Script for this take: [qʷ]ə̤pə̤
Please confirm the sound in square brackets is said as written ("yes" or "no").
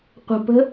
yes